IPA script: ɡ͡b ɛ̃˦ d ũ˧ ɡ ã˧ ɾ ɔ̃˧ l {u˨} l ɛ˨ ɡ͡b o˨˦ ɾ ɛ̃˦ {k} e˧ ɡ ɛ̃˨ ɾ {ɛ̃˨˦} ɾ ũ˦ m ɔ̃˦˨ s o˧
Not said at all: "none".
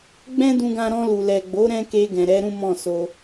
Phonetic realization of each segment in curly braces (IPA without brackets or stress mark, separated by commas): u˨, k, ɛ˨˦